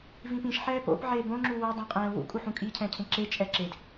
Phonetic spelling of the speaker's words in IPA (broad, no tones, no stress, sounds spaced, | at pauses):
v ĩ p ĩ ʃ ħ ɛː p o̰ p ʕ eː b õ ŋ͡ǁ u w o dˤ ɛ̃ qʼ ɛ̃ː w ṵ kʼ u ħ ũ kʼ i cʰ ɛ̃ː cʰ ẽ ǁ e t͡ʃʼ ɛ ǁ e d